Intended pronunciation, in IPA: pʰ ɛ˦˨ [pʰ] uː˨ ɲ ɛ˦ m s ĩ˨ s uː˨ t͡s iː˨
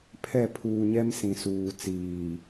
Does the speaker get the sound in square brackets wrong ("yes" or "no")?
no